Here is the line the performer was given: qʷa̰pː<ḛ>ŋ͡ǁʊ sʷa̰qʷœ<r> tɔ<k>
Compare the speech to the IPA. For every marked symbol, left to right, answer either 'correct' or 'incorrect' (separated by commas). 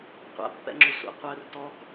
incorrect, correct, correct